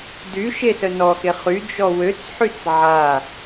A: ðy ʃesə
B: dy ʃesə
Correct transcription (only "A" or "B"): B